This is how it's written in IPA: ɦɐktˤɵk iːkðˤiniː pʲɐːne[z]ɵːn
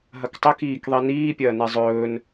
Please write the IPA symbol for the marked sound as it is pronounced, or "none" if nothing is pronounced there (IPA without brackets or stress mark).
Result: zˤ